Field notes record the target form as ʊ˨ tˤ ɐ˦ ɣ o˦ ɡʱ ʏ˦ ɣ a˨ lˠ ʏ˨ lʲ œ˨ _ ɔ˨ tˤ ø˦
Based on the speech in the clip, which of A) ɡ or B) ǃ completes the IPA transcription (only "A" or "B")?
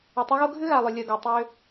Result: A